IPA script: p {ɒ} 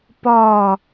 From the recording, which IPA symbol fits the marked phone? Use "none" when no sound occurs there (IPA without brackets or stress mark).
ɒ